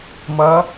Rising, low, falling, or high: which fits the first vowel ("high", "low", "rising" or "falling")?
rising